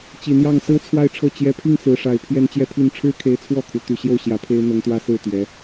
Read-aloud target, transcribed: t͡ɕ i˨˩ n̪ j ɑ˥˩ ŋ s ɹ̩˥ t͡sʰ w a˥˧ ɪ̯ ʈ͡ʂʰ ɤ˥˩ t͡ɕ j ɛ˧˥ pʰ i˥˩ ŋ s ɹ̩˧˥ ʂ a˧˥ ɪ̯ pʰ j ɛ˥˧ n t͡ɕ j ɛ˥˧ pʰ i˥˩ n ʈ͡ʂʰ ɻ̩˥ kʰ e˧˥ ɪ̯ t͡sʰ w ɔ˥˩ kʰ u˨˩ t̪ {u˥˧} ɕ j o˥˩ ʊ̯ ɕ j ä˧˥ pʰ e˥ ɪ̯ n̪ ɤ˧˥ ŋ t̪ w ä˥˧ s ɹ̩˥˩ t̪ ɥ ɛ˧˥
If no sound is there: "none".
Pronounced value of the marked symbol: y˥˧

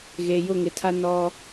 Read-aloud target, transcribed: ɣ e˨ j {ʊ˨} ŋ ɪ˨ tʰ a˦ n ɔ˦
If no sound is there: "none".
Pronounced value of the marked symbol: ʊ˦˨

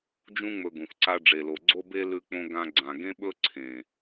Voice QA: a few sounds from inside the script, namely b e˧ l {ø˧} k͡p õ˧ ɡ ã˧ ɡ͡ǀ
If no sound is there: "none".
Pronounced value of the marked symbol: ʉ˧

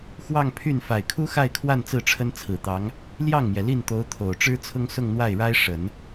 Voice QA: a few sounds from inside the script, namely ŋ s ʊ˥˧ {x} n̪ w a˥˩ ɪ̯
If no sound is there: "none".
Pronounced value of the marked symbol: ŋ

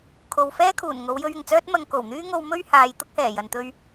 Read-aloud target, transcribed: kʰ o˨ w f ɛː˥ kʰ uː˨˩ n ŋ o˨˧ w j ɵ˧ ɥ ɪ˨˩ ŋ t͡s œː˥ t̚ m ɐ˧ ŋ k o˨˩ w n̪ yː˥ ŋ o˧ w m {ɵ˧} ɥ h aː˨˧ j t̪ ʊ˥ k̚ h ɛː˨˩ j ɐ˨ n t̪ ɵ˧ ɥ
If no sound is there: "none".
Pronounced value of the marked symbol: ɵ˥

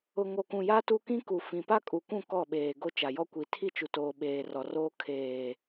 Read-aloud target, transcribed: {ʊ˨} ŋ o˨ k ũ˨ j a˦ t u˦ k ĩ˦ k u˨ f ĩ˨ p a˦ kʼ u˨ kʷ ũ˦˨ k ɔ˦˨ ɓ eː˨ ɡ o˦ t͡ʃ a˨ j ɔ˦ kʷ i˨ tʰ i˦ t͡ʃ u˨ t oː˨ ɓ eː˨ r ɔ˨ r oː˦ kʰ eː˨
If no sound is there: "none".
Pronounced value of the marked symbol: ʊ˨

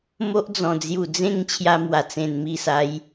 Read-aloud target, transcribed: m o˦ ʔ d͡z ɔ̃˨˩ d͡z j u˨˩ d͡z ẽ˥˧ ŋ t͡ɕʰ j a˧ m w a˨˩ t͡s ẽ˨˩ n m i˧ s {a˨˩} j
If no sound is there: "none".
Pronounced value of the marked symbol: a˨˦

